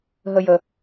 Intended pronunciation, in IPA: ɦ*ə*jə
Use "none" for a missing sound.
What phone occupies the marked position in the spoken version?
ə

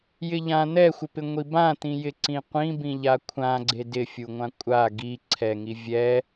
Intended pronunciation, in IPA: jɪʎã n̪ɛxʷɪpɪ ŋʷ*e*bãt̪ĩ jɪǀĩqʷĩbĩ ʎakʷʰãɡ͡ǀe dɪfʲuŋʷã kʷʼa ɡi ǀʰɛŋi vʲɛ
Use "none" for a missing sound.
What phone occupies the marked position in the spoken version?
i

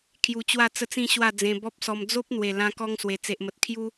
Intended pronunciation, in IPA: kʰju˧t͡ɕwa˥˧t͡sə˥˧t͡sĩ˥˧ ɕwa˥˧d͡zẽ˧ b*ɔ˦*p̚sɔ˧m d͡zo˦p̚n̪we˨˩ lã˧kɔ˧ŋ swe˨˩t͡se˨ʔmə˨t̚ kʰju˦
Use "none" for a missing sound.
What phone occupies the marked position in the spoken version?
ɔ˦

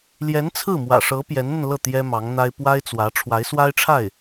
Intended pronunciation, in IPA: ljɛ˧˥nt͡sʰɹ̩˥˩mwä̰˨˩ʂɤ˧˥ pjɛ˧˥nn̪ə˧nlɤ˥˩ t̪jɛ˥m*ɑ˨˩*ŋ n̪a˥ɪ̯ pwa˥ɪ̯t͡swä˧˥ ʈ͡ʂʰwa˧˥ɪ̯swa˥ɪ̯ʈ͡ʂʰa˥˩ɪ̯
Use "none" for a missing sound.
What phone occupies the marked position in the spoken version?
ɑ˧˥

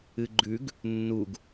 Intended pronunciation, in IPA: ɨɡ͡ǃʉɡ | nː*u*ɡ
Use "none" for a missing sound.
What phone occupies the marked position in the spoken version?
u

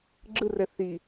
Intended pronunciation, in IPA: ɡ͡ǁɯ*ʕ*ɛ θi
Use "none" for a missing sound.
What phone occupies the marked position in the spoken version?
r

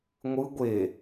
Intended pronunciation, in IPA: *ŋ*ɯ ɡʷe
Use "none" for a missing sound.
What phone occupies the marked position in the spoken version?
ŋʷ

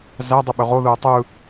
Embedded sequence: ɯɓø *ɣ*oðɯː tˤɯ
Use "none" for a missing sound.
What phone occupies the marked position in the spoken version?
ʁ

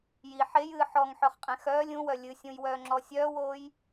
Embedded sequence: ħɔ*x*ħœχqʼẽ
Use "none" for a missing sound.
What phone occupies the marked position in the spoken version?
ŋ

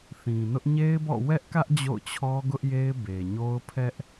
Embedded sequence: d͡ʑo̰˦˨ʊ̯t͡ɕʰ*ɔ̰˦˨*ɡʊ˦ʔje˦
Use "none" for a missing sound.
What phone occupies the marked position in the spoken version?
ɔ˦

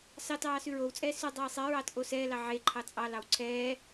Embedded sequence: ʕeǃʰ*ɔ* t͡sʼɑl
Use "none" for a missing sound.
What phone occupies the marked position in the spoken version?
ɑ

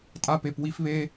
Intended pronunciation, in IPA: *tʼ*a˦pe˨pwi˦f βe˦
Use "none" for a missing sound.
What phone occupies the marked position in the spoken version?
tʼ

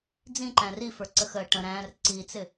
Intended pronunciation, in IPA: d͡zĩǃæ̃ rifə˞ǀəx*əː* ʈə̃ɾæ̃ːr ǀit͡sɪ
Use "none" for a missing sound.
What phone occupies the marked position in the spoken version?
əː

